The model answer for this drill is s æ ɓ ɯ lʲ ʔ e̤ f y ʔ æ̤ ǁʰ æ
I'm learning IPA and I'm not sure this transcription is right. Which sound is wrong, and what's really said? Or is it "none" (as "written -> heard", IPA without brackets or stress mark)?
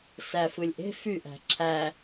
ɓ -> f